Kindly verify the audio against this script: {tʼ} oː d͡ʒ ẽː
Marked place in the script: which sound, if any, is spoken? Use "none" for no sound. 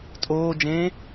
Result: tʼ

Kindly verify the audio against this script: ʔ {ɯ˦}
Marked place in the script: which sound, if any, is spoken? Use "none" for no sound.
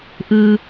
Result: ɯ˦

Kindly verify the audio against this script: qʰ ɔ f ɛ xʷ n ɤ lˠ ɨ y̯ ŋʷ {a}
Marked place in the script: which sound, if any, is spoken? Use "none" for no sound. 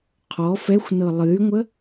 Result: ə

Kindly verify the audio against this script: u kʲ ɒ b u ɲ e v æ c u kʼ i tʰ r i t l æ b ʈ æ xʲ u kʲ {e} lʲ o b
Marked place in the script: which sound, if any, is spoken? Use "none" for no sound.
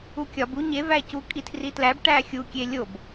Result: e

